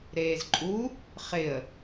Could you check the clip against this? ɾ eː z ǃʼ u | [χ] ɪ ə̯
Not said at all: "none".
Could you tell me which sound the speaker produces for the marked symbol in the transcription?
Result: χ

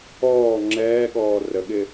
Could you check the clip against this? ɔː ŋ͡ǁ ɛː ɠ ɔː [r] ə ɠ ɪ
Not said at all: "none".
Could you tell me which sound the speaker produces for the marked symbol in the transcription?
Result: r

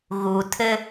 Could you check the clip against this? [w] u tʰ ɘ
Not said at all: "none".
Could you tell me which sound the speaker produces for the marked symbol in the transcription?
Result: ɣ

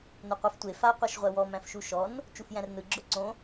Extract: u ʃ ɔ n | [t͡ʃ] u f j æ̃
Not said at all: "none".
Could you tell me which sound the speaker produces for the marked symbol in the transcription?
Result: t͡ʃ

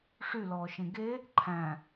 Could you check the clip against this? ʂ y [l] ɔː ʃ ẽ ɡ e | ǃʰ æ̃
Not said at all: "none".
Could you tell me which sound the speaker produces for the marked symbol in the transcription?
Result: l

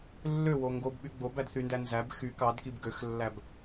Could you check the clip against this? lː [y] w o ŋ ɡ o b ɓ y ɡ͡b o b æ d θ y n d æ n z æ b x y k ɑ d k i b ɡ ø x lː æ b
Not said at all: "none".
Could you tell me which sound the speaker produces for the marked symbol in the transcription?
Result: ø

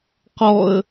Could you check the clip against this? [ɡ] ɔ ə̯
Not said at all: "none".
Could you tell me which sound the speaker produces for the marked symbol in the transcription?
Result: q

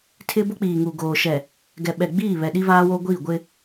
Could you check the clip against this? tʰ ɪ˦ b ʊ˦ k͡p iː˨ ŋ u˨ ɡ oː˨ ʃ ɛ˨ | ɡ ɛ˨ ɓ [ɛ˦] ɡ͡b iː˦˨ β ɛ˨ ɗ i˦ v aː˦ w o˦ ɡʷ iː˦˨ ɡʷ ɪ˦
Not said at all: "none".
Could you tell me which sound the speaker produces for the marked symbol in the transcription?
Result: ɛ˨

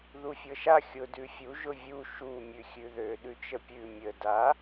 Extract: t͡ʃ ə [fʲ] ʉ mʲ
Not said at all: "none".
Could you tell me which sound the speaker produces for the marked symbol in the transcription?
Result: pʲ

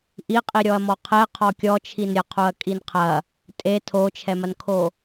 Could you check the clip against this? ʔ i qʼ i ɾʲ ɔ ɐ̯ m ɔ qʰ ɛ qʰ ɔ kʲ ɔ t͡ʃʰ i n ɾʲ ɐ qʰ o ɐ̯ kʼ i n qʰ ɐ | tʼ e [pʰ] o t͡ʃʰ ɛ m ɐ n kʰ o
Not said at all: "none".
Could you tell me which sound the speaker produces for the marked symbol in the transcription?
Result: tʰ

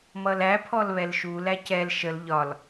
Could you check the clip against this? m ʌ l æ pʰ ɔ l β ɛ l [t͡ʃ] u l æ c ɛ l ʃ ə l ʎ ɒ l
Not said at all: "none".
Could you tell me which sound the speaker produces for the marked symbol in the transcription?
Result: ʃ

